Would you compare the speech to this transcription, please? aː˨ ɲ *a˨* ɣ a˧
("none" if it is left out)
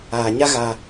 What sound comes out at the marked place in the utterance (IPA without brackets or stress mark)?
a˦